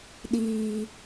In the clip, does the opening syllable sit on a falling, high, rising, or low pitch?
low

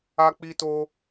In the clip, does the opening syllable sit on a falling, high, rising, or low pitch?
high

